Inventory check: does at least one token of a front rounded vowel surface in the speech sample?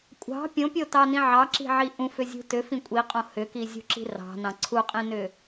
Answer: yes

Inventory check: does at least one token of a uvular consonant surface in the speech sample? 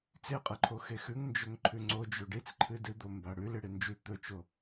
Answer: yes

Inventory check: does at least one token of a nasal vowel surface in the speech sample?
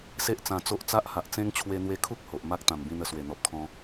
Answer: yes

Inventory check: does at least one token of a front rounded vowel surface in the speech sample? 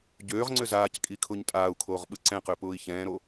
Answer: yes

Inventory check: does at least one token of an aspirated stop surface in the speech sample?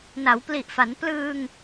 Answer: no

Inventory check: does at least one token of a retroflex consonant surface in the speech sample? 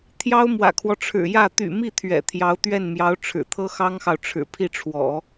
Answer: yes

